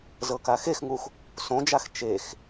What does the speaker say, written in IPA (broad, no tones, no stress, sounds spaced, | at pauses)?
z ɤ k a x e x ŋ u x | s õ d͡ʒ a x t͡ʃ e x